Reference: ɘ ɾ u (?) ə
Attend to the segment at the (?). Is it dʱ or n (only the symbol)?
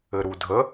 dʱ